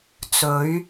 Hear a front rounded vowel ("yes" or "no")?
no